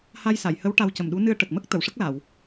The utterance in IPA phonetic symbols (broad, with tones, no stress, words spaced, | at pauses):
ha˧jsa˨˩˨jhə˧˥w ʈa˧wcə˨˩mɗu˧˥ nɨ˧ə̯ʈə˨˩k̚mə˦˥k̚ t̪ə˨˩˨wʂə˦˥k̚la˨˩˨w